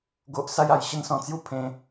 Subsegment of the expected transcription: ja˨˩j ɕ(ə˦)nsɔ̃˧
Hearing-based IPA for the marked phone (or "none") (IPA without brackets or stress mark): ə˦